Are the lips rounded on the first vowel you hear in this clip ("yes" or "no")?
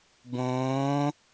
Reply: yes